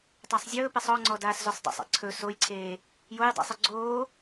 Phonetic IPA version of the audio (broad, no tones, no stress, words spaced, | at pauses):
tˤasˤzʲɵːpesˤ ɔŋ͡ǀɔ daːszosˤdˤə̰sˤḛ ǀʰɵ sojǀʰeː | joj dˤə̰sˤə ɡ͡ǀoː